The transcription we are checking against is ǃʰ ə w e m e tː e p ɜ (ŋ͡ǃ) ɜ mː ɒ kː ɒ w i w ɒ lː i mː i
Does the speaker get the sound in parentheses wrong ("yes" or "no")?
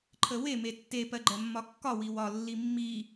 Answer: yes